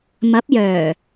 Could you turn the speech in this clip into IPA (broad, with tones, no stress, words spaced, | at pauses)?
mɐ˨˥p̚jœː˨˩